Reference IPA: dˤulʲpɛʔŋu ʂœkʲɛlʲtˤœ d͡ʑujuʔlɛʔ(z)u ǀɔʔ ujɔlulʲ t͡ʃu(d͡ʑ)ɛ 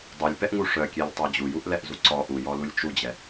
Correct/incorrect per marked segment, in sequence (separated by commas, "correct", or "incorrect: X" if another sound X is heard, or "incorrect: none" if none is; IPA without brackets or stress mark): correct, correct